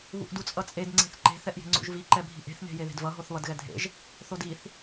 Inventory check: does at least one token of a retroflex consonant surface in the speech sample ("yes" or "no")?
no